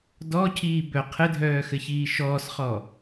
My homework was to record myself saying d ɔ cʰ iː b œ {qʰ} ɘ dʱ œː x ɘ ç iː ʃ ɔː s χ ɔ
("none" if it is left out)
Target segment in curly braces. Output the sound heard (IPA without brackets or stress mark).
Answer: qʰ